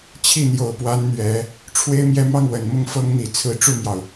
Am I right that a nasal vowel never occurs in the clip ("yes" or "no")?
yes